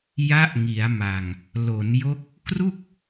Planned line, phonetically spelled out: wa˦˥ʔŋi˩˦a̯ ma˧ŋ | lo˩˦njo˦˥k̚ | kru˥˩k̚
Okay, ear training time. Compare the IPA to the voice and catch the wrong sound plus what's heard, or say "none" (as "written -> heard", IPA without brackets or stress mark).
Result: w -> j